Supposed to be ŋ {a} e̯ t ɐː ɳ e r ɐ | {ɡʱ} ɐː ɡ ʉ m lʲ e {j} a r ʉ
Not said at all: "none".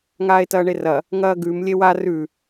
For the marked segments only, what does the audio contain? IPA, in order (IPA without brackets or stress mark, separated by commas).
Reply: aː, ŋ, w